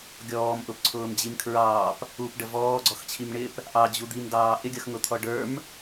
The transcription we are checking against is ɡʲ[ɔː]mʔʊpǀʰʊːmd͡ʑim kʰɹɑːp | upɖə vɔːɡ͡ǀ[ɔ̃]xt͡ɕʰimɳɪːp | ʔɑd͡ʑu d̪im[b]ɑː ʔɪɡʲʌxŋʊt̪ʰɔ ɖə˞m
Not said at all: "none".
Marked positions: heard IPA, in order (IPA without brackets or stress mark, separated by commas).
ɔː, ɔ, d